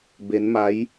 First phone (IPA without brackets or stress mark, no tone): b